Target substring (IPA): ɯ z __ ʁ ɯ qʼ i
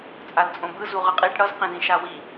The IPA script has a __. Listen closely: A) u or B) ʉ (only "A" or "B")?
A